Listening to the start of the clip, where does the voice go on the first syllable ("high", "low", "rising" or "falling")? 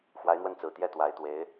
rising